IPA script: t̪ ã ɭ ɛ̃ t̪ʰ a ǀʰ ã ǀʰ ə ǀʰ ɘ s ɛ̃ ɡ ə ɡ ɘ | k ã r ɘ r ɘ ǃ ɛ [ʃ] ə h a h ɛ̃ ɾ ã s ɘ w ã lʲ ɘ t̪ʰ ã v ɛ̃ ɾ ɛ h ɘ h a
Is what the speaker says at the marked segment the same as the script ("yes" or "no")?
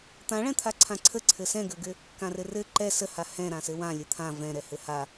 no